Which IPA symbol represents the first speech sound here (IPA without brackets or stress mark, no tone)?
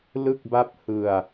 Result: l